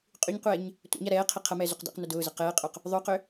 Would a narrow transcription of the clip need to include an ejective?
yes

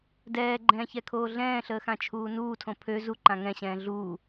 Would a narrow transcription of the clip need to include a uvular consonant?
no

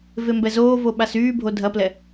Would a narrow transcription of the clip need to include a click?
no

